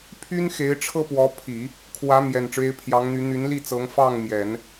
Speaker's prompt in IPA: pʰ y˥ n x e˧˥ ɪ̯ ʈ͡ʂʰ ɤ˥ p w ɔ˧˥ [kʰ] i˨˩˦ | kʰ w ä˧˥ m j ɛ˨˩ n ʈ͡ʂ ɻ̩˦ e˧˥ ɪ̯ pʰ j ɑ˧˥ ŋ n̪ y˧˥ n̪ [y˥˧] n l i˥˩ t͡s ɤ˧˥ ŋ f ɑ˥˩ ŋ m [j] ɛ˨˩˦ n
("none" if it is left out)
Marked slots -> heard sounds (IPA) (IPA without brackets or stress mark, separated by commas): pʰ, y˧˥, j